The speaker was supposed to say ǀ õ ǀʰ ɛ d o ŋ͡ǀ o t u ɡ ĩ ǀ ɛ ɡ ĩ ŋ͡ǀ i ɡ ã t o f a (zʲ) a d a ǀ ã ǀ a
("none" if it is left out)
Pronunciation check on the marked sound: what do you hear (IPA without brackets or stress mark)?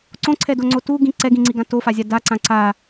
zʲ